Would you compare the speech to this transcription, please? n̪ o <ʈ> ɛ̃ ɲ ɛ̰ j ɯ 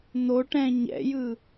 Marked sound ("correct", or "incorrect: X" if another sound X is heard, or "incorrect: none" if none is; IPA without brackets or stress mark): correct